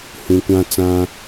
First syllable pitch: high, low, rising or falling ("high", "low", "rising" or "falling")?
low